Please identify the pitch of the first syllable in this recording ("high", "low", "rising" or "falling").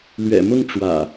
low